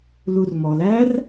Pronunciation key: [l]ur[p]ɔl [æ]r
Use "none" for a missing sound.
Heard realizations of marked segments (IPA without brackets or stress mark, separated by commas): l, m, æ